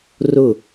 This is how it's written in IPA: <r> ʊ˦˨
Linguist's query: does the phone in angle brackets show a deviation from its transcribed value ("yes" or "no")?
no